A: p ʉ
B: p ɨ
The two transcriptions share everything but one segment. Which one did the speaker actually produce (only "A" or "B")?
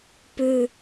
A